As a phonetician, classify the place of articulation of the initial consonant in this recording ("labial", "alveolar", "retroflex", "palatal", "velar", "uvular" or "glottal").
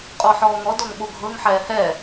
uvular